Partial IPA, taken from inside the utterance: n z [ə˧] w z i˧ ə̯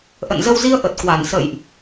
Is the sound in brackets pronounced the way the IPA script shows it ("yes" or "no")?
yes